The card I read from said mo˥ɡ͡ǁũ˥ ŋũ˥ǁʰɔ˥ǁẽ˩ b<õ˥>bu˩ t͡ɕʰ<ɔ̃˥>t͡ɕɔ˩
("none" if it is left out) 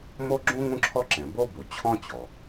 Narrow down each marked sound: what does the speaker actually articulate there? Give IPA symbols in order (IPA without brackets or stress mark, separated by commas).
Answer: o˥, ɔ̃˥